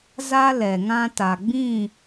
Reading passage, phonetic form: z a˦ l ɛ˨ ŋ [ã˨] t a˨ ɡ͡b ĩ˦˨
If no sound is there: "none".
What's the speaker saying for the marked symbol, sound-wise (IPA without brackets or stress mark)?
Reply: ã˦